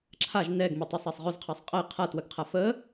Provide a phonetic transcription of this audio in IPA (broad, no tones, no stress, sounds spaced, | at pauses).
ǁʰ a ʒ n ɛ ɡ m ə tˤ a sˤ a sˤ ʁ ɵ z qʰ a sˤ qʼ ɛ qʰ a t w ə ɡ qʰ a f ə